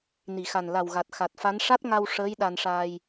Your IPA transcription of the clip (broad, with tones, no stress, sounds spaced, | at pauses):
n i˨˩˨ x a˨˩ n l a˨˩ w ɣ a˨˩ t̚ x a˨˩ t̚ f a˧˥ n ʂ a˦˥ t̚ ŋ a˧ w ʂ əː˧˥ j ɗ a˧ n ʂ aː˧ j